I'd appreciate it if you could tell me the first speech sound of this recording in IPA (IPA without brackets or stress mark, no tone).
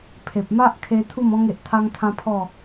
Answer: pʰ